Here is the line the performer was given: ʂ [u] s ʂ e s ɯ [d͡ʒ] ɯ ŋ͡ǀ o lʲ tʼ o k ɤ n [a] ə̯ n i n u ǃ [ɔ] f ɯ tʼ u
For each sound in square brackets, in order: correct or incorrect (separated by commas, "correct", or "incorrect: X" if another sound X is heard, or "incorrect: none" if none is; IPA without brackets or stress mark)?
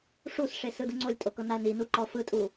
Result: correct, incorrect: d, correct, correct